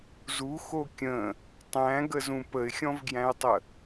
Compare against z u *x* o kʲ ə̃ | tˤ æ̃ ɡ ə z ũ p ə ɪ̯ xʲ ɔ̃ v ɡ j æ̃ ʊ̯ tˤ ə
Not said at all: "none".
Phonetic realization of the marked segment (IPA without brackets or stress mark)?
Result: x